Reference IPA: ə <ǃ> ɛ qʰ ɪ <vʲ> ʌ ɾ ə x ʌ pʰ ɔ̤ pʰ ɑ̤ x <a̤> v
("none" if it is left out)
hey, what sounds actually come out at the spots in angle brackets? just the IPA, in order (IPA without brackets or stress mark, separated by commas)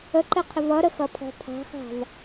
ǃ, v, ɑ̤